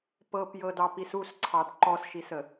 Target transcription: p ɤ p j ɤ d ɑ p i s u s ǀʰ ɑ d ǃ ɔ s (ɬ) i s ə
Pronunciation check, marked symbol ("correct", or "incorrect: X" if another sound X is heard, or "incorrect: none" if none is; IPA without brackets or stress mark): incorrect: ʃ